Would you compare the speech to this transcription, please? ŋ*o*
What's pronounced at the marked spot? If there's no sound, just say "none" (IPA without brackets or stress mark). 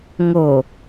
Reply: o